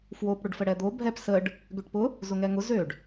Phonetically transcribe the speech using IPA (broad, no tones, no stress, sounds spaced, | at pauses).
f w o p ɽ ʊ ɖ f ə ɽ ɛ d̪ o bʱ ɛ p s ə ɖ | ɡ ø ʈ p ʊ | z ʊ ŋ ɛ ŋ ʊ z ø ɖ